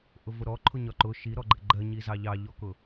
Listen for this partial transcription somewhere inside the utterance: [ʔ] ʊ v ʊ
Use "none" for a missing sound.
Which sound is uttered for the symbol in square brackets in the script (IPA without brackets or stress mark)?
ʔ